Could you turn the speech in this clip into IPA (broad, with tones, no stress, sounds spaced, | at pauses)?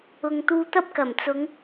ʊ˨ ŋ t̪ uː˧ t̪ ɐ˥ p̚ k ɐ˨˩ m t͡s ʊ˨˧ ŋ